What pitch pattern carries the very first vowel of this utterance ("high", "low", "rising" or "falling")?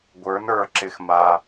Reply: rising